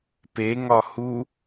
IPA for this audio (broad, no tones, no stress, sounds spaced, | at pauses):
p e ŋ ɒ h u